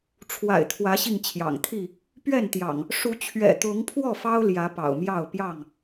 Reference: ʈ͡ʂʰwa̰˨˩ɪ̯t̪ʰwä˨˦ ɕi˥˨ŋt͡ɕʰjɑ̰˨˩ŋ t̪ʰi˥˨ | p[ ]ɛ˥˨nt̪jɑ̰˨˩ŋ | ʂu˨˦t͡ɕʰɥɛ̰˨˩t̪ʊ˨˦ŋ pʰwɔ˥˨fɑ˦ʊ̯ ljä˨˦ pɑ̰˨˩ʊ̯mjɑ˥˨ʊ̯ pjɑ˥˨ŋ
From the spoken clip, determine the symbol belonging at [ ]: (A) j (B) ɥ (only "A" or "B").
B